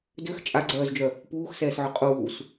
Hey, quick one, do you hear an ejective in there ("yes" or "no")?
yes